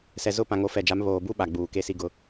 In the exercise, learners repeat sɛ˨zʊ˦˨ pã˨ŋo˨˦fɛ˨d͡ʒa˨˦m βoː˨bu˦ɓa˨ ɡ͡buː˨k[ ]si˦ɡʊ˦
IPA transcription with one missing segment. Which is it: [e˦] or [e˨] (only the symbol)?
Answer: e˦